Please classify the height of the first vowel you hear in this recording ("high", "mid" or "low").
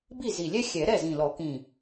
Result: high